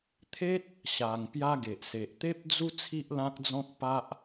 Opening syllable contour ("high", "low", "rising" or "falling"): high